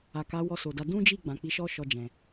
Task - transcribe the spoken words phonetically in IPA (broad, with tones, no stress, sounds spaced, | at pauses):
a˨ k a˨˦ w ɔ˧ s o˨ d a˧ d ũ˦ d͡ʒ i˦˨ ɡ͡b ã˨ k͡p i˨˦ ʃ ɔ˦ ʃ ɔ˧ d͡ʒ ɛ̃˨